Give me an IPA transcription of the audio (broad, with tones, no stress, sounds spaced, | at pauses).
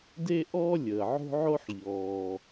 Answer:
d e˥ ʔ ɔː˥ lʲ əː˩ ʕ o̤˥ ʕ o˥ ħ ʎ ɔː˩